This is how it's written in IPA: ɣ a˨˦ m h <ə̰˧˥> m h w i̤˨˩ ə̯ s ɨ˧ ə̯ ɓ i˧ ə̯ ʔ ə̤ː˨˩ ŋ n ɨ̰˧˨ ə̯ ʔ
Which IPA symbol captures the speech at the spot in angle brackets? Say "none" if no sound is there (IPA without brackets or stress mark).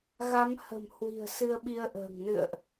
ə̤˨˩